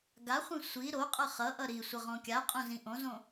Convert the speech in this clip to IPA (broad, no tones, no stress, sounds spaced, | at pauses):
ɡ a χʷ ĩ sʷ i ɾ o qʼ ʌ χ ʌ ʔ ʌ ɾ i sʷ ʌ ʁ õ kʲ a qʼ õ z ĩ ʔ õ z õ